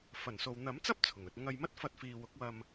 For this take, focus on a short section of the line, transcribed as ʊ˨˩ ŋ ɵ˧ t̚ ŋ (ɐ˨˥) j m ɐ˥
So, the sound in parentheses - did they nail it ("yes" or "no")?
no